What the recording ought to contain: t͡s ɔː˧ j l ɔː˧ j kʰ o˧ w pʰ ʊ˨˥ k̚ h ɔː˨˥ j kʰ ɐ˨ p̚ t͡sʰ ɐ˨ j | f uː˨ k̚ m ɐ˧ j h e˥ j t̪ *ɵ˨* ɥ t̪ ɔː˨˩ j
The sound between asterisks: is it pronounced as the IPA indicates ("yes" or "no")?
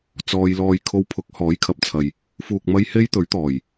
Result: no